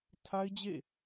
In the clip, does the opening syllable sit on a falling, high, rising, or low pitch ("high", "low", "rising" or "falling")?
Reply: high